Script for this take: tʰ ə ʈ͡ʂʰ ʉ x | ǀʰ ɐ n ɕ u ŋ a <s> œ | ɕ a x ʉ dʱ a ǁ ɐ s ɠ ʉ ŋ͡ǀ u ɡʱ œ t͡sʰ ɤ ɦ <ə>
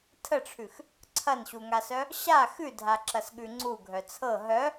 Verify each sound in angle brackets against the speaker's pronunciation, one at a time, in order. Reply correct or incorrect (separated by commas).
correct, incorrect